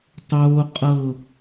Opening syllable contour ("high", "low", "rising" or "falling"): high